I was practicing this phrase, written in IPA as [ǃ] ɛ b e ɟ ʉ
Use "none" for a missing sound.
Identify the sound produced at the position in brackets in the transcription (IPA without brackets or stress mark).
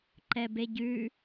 ǃ